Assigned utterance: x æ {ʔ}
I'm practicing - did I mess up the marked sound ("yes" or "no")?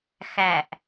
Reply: no